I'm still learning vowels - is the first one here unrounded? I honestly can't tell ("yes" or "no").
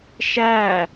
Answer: yes